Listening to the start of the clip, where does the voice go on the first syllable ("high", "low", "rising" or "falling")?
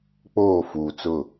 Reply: falling